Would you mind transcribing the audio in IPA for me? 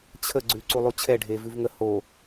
t͡ɕʰ ə ɡ͡ǀ ʉ ǀ u lˠ u t͡ɕʰ ɛ ɖʱ e v ʉ v ŋ ə h o

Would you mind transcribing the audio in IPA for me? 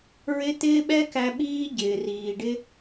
ɹ ɪ˦ t̪ ɪː˦ ɓ ɛ˦ k æ˧ ɓ iː˦ ɟ ɪː˨ r iː˨ ɖ ɪ˦

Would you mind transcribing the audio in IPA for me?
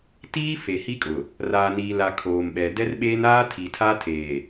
t iː˦ f e˨ h i˦ kʼ ʊ˨ | r aː˨ n iː˨ l a˨ kʰ oː˨ m ɓ ɛ˨ d ɛ˦ r ɓ eː˦ n aː˦ tʰ i˨ tʰ a˦ tʰ eː˨

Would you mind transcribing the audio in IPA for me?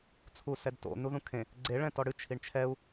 t͡sʰ u s ɛ d t o̰ n u ð ũ kʰ ẽ | ɡ͡ǀ e ɭ ɛ̃ t ɔ ɽ ɨ t͡ʃʰ i ɳ t͡ʃʰ ɛ u̯

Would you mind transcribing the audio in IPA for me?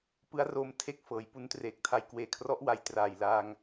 p ɯ˦˥ a̯ r o˧ m tʰ e˥˩ k̚ f ɤː˩˦ j p u˦˥ n t r eː˨˩ k̚ tʰ a˧ j k w eː˨˩ kʰ r ɔ˦˥ ʔ w a˩˦ j t r aː˨˩ j l a˧ ŋ

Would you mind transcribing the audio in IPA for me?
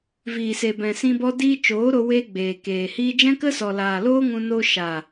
v iː˨ s e˨ b ɛ̃˨ s ĩ˧ b ɔ˦ d iː˦ t͡ʃ oː˨˦ ɾ o˧ w eː˦ ɡ͡b eː˨ k eː˨ h iː˦ d͡ʒ ɛ̃˦ k ə˦ s ɔ˨ l aː˨ l oː˦ ŋ ũ˧ n o˧ ʃ a˨

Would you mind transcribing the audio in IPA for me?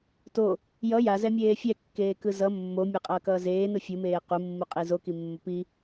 t o | j ʌ j a z ɛ mʲ eː fʲ ɛ kː eː k ɯ z ʌ mː o mʲ a qʼ ʌː k ʌː z eː n ɯ fʲ u m eː q u mː u qʼ i z o k i mː o p i

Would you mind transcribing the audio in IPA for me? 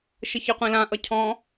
ʃ ə ç ɘ qʷ ĩ l ã ʔ ʌ cʰ ɔ̃

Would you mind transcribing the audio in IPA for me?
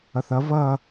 ʌ θ ʌ v ʌ

